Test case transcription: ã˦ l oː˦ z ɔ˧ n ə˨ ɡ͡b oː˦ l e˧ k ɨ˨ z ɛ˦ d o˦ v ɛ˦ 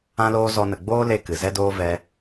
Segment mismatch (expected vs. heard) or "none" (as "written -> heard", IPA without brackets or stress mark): o˦ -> oː˦